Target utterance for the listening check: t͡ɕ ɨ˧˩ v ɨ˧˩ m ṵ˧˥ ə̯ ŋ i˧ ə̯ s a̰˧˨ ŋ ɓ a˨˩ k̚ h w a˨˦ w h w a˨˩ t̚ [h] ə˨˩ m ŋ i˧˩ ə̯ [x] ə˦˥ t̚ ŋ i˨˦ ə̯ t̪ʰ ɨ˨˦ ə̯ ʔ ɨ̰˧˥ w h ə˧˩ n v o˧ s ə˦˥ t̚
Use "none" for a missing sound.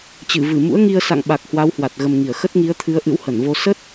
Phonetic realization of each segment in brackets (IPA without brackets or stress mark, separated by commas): ɣ, x